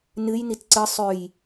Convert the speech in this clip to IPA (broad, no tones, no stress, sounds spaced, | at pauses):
n ɨ j n i t ǀ ɨ sˤ ʉ j